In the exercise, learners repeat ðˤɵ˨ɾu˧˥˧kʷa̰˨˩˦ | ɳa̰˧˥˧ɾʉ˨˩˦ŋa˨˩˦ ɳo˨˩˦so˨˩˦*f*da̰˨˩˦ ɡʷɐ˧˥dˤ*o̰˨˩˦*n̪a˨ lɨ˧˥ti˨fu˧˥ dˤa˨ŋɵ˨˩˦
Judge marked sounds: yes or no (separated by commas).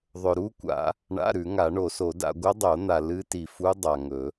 no, no